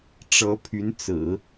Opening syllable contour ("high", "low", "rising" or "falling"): rising